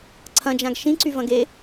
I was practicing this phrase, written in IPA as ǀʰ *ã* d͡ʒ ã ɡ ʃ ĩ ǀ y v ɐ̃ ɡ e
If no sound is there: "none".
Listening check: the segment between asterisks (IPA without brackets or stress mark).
ɐ̃